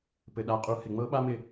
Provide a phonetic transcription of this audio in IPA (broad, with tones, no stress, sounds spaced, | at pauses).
p ɘ˩ ɗ a˩˥ qʼ u˩˥ h ɪ˩ ŋ͡m ɤ˥ ɓ a˥ m ɪ˥˩